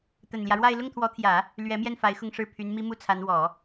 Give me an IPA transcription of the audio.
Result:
t̪ə˨˩nljä˦ɻwa˥˧ɪ̯ lʊ˥˩ŋt̪ʰwɔ˧˥t̪ʰjä˨˩˦ | lɥɛ˧˥mjɛ˥˩n fa˧˥ɪ̯xʊ˥˧ŋʂɻ̩˥˩ pʰy˧˥n mi˥mu˥˩t͡sʰa˧˥n wɔ˨˩˦

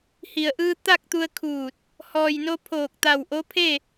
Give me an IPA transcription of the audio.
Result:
hi˩ə̯ʔɯː˧ t̪a˥˨k̚t̪u˧ə̯kʰuː˧˩t̚ | hɔː˩jno˧ pʰoː˧˩k̚t̪a˧˩wʔo˧˥pʰe˥˨

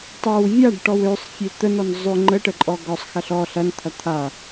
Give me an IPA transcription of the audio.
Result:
tˤɐw vʲaɖ ʈɔwøsˤ fʲet̪ənɔn zˤʏ ŋ͡ǃəʈəǃʼɔ ɡɔsˤ xɐɬɔ ɬɐnt̪ʰɐ t̪ʰa

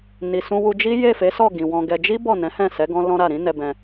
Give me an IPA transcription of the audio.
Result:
ni˨sũ˧wu˧d͡ʒi˦ je˦˨fe˨˦sɔ˦˨ ɡĩ˨wɔ̃˧ɡɛ˧ d͡ʒi˦ bɔ˦˨nɛ̃˨˦hɛ̃˦˨sɛ˨˦ ɡɔ̃˦lɔ̃˦ɾa˦˨ ɾĩ˨˦nɛ˧bɛ̃˧

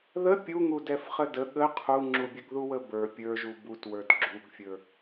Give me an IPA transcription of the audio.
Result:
ðə pʲuŋudɛfχə də ɠə qʰuŋ͡ǁubʲəɡ ðuwəbə˞ pʲə˞ʒu butwə˞d ɡ͡ǁuɡfʲə˞

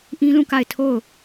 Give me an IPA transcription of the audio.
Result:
ʔĩ˦lũ˦˨ka˦˨ɪ̯ tʰo˦˨ʊ̯

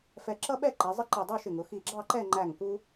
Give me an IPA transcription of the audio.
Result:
fɛ˧ǁʌ˥ɓɛ˥˧ ǃi˩˧zˤɪ˥ǃi˧˩ dˤu˥˧ʃɪ˧˩ŋʊ˩˧ xi˧˩ɡ͡ǁɑ˥˧ǃɛ˥˧ ŋ͡ǃæ˧˩ŋku˧

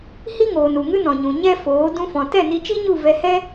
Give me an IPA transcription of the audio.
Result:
hi˦ŋoː˨n u˨ŋɨ˦nɔ̃˨ɲũ˨ ɲɛ˦foː˨˦ dũ˧ fɔ̃˨tɛ˦˨ni˧t͡ʃi˦ ɲu˦˨vɛ˧hɛ˦

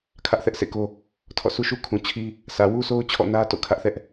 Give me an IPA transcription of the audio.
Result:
kʰä˦ʔθɛ˦ʔsḛ˦˨ko˦ | tʰɔ̰˦˨ su˦ʃu˦ kʰũ˨ t͡ɕʰi˦ | sä˨wu˦so˦ʊ̯ t͡ɕʰɔ̰˦˨nä˦ to̰˦˨kʰä˦ʔθɛ˦ʔ

